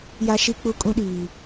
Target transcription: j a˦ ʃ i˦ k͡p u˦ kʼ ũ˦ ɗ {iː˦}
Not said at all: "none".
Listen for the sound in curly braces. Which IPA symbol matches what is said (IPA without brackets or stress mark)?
iː˨